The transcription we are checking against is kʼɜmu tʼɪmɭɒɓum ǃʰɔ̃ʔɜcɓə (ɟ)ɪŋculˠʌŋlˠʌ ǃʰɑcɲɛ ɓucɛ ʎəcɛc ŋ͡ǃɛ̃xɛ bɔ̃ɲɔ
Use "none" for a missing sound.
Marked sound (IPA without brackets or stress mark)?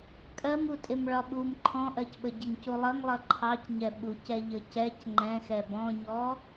ɟ